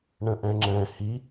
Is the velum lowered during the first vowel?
yes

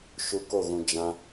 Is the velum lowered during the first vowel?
no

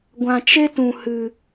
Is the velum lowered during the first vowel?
yes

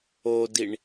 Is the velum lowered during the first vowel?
no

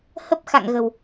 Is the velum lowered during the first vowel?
no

